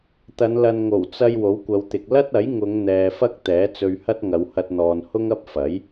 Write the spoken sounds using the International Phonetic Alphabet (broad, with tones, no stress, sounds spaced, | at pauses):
t̪ ɐ˨˧ n l ɐ˧ n ŋ o˨˩ w t͡s ɐ˧ j w o˨˥ w kʷ ɐ˨˧ w t̪ ɪ˨ k̚ l ɐ˥ t̚ ɐ˨˥ j ŋ ʊ˨˧ ŋ n̪ ɛː˨ f ɐ˥ k̚ t̪ ɛː˨˥ t͡s ɵ˧ ɥ h ɐ˥ t̚ ŋ ɐ˨˧ w h ɐ˧ t̚ n̪ ɔː˨ n h ʊ˥ ŋ ɐ˥ p̚ f ɐ˨˥ j